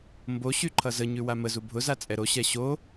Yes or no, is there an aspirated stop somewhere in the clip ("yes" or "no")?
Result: yes